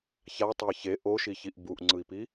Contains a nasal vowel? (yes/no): no